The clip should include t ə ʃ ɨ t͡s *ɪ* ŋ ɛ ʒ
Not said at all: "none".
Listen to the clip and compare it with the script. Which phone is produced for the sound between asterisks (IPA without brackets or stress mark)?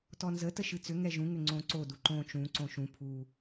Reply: ʏ